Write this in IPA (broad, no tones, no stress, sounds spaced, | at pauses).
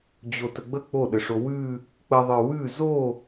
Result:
d͡ʑ o t ə ɡ͡b ə k͡p o ɗ ə ʂ o w ʉ | k͡p ə ðˤ ə˞ w ʉ z o